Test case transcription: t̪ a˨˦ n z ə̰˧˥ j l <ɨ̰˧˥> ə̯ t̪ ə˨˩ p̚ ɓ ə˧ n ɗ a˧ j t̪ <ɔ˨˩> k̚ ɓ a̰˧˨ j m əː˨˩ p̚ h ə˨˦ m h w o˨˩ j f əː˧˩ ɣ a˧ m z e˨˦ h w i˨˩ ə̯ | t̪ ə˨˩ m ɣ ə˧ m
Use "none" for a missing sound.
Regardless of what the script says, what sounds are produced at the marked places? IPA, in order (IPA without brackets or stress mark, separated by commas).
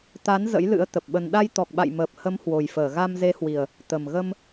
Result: ɨ̰˧˥, ɔ˨˩